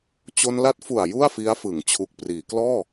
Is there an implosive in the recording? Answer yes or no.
no